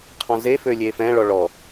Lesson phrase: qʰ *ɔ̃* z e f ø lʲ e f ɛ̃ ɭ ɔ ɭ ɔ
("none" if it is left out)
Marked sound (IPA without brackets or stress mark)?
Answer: ɔ̃